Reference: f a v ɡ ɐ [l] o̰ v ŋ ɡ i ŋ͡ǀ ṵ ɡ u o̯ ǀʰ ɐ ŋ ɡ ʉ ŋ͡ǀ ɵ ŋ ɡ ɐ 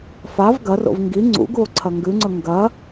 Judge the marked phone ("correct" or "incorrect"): incorrect